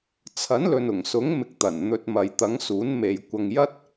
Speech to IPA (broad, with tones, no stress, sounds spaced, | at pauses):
t͡sʰ ɐ˨˥ n l ɵ˨ n ʊ˨˩ ŋ s ʊ˨˥ ŋ m ɪ˧ k̚ t̪ ɐ˨˩ n n̪ ɵ˧ t̚ m ɐ˨ j t̪ ɐ˨˥ ŋ s uː˨˥ n m e˨ j kʷ ɐ˧ ŋ j ɐ˥ t̚